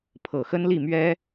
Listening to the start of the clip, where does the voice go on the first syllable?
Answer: low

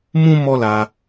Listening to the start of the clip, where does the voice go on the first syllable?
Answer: high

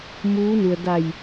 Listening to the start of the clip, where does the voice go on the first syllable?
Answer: rising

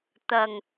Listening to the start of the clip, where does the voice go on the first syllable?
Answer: low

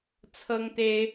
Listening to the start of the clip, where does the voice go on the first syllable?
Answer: high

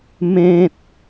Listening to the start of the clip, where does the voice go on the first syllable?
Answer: high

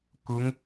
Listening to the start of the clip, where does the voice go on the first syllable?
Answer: rising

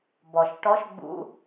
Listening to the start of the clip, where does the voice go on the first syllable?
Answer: low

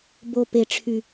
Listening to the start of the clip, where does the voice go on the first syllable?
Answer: low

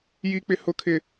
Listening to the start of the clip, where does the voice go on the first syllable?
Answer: high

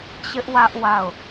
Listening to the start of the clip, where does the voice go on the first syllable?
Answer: high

